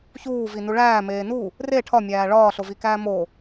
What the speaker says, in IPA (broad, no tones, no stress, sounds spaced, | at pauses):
ç uː v i n u ɭ æː m eː n u | r e ʈʰ ɒ mʲ æː ɭ ɒː ɬ o v i k æː m o